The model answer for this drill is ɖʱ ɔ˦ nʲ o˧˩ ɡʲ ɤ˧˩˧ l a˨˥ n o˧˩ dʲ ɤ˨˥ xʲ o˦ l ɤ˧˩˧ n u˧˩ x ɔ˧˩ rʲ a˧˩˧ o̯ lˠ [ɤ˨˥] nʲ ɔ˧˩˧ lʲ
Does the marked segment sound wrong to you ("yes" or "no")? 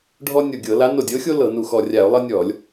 yes